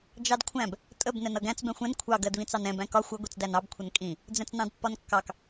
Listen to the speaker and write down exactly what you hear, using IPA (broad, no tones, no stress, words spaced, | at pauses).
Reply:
d͡ʒɑdkʷʰæ̃b | tʼəb nɛnʌɡæ̃t͡s bɛ̃xʷɛ̃n kʷʰɑ ɡɜdβĩt͡sɑnɛ̃ bæ̃kɒ xʷʌ ɡʷit͡sdænɑb kʷʰənkʼĩ | d͡zɛ̃t͡snɑ̃dpːɒnkːɑk